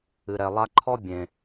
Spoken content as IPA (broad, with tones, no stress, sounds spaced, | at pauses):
ɨ˨ ɾ ɛ˨ lˠ a˦ ǃʰ ɔ˦ bʲ ẽ˨